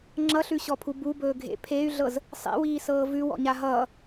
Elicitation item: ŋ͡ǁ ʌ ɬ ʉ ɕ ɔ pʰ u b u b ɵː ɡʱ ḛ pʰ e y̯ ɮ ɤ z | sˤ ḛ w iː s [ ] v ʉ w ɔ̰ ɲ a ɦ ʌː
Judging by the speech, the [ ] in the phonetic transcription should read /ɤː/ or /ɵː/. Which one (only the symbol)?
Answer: ɤː